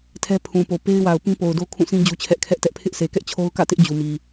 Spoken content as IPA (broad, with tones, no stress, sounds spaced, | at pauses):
tʰ ɛ˦ pʰ ũ˨ p o˨ p e˦ ɪ̯ w a˨ ʊ̯ p ĩ˦ p o˨ ʊ̯ d o˦ kʰ ũ˦˨ sʰ ĩ˦ d͡ʑ u˦ t͡ɕʰ ɛ˦ ʔ kʰ ɛ˦ ʔ t ɛ˦ ʔ pʰ ɪ˦ ʔ sʰ e˨ k ɛ˦ ʔ t͡ɕʰ o˦ ʊ̯ k ä̰˦˨ t ɪ˦ ʔ d͡ʑ u˨ m i˨